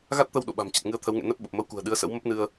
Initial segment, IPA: ɣ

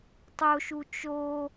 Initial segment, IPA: tˤ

